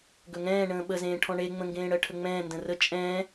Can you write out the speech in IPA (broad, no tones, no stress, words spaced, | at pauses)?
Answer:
ɡɵŋɛ̃ː ɳə̃ːɓəzẽː ʈʰɔ̃ɳeŋ͡mə̃ŋɡẽː ɽɜʈʰəŋ͡mɛ̃ː ndə̃rə t͡ʃʼɛ̃ː